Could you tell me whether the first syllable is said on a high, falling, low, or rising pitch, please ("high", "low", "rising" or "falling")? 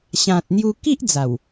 low